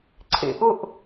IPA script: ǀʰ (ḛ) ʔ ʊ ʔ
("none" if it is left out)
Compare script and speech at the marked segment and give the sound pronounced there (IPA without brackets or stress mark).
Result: ḛ